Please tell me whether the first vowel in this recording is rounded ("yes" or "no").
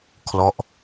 yes